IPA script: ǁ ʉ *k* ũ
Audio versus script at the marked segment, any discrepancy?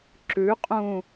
yes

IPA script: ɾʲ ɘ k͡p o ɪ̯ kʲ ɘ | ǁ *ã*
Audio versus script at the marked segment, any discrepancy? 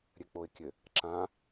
no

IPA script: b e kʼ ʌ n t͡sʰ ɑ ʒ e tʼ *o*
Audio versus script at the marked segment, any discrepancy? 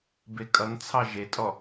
yes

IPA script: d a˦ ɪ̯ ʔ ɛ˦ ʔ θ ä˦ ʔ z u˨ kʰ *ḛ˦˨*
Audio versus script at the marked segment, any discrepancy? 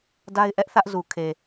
yes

